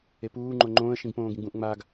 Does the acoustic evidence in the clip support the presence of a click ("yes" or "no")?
yes